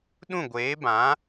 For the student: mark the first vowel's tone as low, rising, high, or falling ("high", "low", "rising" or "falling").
falling